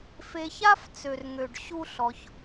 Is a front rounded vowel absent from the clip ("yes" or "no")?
no